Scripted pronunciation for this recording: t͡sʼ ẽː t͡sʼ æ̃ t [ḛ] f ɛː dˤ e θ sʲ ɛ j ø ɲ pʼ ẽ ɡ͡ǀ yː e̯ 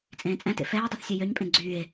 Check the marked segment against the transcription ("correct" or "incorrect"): correct